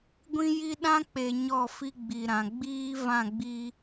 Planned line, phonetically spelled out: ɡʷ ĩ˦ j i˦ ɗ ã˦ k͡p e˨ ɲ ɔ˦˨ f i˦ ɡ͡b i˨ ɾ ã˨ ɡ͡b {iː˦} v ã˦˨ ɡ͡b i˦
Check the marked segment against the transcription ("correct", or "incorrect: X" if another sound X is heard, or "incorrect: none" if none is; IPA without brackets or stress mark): correct